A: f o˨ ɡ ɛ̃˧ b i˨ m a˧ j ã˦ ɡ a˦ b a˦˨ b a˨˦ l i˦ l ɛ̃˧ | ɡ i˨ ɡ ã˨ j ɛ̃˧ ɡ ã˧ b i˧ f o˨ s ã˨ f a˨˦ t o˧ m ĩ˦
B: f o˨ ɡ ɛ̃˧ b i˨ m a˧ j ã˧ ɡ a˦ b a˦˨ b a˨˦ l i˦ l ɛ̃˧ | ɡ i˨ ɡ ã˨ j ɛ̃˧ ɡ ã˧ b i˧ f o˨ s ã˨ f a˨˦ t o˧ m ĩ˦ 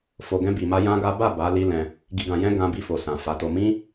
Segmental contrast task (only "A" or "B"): A